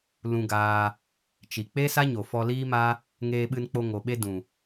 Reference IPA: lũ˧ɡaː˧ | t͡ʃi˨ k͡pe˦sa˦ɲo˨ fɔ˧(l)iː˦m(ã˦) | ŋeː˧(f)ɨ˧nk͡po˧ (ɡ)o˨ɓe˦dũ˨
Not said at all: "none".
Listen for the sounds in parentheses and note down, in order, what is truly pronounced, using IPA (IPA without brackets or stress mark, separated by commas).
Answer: l, a˦, ɓ, ŋ